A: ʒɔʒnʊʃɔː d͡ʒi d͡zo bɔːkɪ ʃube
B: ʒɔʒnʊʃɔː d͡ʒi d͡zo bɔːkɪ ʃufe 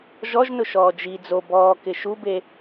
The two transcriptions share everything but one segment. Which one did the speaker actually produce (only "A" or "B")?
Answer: A